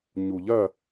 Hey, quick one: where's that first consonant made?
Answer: palate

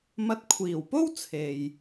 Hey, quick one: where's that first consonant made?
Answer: lips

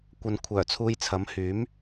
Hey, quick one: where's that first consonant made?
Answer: velum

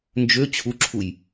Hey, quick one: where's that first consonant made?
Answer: tongue tip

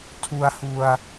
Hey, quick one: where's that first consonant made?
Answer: tongue tip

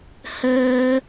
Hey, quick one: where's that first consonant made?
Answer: throat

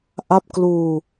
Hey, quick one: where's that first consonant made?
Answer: throat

